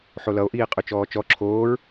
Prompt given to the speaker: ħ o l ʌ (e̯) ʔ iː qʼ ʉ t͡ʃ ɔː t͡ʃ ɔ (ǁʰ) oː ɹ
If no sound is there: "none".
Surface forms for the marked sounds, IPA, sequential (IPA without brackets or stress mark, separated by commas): o̯, ǁʰ